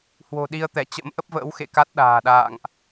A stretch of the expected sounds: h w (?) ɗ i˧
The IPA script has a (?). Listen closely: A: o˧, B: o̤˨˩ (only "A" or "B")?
B